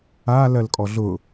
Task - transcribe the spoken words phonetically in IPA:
a l ɜ l kʼ ɔ ɮ ʊ

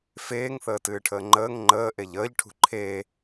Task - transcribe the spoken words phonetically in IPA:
f eː ŋ θ əː t ɨː ʈʰ əː ŋ͡ǃ əː ŋ ŋ͡ǃ əː ʔ e ʎ əː ʎ ʈʰ ṳ ǃʰ eː

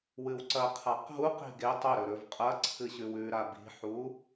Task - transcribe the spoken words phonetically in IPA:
w ɨ w ǀ ɐ qʰ a q ɦ u q i̤ ɡ e tˤ ɵ ɾ ɵ ɾ ɵ v qʼ ɐ ǀʰ ɨ ɕ ʉ w ʉ ɾ a b i̤ ħ u

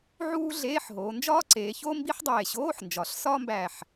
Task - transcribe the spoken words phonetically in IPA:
ʕ uː˥ ɮ eː˧˥˧ ħ ɦ oː˩˧ n d͡ʒ ɒː˥ ǀ eː˩˧ ç oː˥ m b i˥ ħ dˤ eː˧˩ ɕ oː˧˥˧ ħ n d͡ʒ ɒ˩˧ ɬ s ɒː˥ m b æ˧˩ ħ

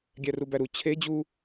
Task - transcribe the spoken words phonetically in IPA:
ɡʲ æ r u b æ ɾ u t͡ɕʰ e d͡ʑ u

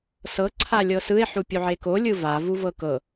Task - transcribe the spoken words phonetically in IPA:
s ɤ ǀʰ a lʲ ɤ s ɯ e̯ ħ u pʲ u ʕ e k o lʲ ɯ v a v u v ɤ k ɤ

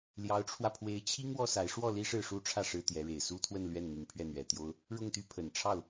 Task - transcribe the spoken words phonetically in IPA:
l j ɑ˧˥ ʊ̯ ʈ͡ʂʰ w ä˧ pʰ w e˧˥ ɪ̯ t͡ɕʰ i˥ ŋ w ɔ˥ s a˧˥ ɪ̯ ʂ w ɔ˥˩ l i˥ ʂ ɻ̩˥˩ ʂ u˥ ʈ͡ʂʰ ä˥˩ ʂ ɻ̩˥ t̪ j ɛ˧˥ ɻ e˨˩ ɪ̯ s u˥ t̪ʰ w ə˥˧ n l ɥ ɛ˥˩ n n̪ i˧˥ ŋ pʰ ɥ ɛ˥˩ n̪ ɥ ɛ˨˩ t̪ j o˥ ʊ̯ | ɻ ʊ˥˩ ŋ t̪ y˥ pʰ ə˨˩ n ʈ͡ʂʰ ɑ˥˩ ʊ̯

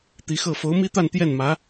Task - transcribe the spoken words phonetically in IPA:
t̪ i˧˥ x ɤ˥˩ f o˧˥ ʊ̯ m i˥ t̪ a˥˧ n t̪ j ɛ˥˩ n m ä˧˥

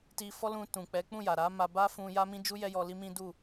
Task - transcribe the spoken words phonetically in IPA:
t i˧ f ɔ˦ l ũ˧ t ũ˨ k͡p ɛ˨˦ k͡p ũ˦˨ j a˨ ɾ a˨˦ m a˧ b a˦ f ũ˧ j a˦ m ĩ˦ d͡ʒ u˦ j ɛ˦ j ɔ˧ l i˦ m ĩ˦ d u˦˨

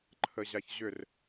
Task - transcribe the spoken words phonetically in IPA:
ǃʰ ə ʑ a ç ʑ ʏ r

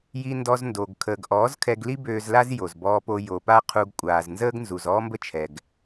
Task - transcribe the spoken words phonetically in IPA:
j i˧ n d ɔ˧ z n d o˨ ɡ kʰ əː˨ ɡ ʔ ɔː˨˦ z kʰ ɛ˧ ɡ l i˦ b øː˧ z l a˦ z j o˨ z b ɔː˧ p o˧ j o˨ p a˦ qʰ u˧ ɡ kʷʼ aː˨ z n z əː˦ ɡ n z u˨ z ɔː˦ m b ə˦ t͡ʃʰ ɛ˨ ɡ

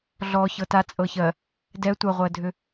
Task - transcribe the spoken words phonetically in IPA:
ɮ ɔ ç ɤ t a t͡sʼ ɤ ç ɜ | d ɛ tʷ ɐ ʁʷ ɜ dʱ ʏ

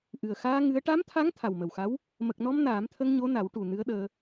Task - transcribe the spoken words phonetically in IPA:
ʔ ɨ˨˩ ə̯ x aː˧ ŋ ɨ˧˥ ə̯ ʈ a˧˥ m t̪ʰ a˧˥ ŋ t̪ʰ a˨˩ w m ə˨˩ w x a˧˥ w | m ə˨˩ k̚ n ɔ˧ m n aː˨˩˦ m t̪ʰ ə˧ ŋ ɲ o˧˥ n a˨˩˦ w ʈ u˨˩ n ɨ˧˥ ə̯ ɗ əː˧

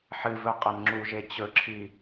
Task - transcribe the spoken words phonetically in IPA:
ħ ɨ v ɵ qʼ ɐ n ŋ͡ǁ u ʒ e t͡ɕ ɵ ǁʰ i

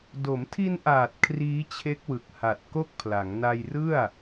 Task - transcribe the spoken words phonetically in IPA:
d o˩˦ m tʰ i˧ n ʔ aː˨˩ t̚ kʰ r iː˦˥ t͡ɕʰ e˦˥ k̚ w ɯ˨˩ k̚ h a˨˩ t̚ k o˥˩ k̚ pʰ l a˩˦ ŋ n a˧ j r ɯ˥˩ a̯

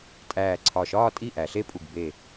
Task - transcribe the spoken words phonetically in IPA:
tʼ æː˧˩ ǀʰ ɒ˧˩ ʃ ɒː˥˧ tʼ i˥˩ ʔ æ˩˧ ɬ e˥˧ pʼ u˧˩ ɡ b e˧˩

